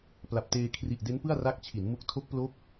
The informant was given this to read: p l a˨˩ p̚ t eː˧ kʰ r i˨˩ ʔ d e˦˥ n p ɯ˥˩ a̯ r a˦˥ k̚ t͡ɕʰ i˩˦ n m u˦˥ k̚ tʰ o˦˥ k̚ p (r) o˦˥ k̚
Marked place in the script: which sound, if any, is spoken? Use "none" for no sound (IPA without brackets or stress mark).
l